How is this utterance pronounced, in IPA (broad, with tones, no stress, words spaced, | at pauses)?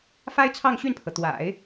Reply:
fa˥ɪ̯t͡sʰɑ˥˧ŋɕy˥˩npʰɤ˩ t̪wa̰˨˩˦ɪ̯